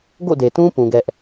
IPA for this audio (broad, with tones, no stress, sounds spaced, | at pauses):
ɡ o̰˦˨ d e˨ t ũ˦ p ũ˦ ɡ ɛ˦ ʔ